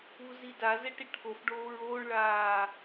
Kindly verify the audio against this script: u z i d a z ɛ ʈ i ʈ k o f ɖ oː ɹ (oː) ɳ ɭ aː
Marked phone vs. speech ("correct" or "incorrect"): correct